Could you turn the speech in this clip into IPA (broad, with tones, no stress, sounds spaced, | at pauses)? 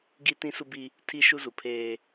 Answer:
ɡ i˦ t ĩ˦ s u˦ b i˦ | tʰ i˦ ʃ u˦ z u˨ pʰ eː˦